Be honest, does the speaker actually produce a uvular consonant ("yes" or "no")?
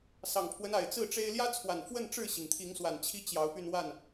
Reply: no